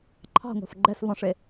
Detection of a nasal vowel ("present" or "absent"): present